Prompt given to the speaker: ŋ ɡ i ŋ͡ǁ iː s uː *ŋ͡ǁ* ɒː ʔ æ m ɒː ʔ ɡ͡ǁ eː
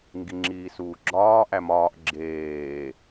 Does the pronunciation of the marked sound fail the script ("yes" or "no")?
yes